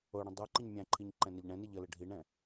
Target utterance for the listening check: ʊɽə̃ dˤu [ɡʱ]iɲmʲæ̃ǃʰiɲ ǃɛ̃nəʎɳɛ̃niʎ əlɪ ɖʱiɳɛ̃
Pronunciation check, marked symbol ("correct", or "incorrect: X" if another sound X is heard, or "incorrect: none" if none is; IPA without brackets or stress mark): incorrect: ǃ